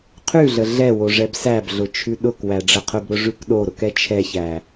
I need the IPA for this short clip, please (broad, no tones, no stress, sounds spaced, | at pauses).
qʰ ʉ ɮ ə ɮ ɛ w o ʐ ɛ b s æ b ɮ ʊ t͡ʃʰ ʉ ɗ ʊ k w æ ɖ͡ʐ ə qʰ ʊ b ɾ ʊ ʐ ʉ k ɗ o ɾ ʊ k ɛ t͡ʃʰ ɛ ç æ